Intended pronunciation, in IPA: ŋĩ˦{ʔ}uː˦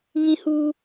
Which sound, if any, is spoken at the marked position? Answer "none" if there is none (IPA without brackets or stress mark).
h